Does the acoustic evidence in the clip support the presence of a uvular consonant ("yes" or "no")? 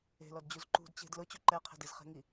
yes